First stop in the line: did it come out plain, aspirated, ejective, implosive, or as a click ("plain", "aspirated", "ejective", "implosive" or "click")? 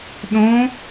implosive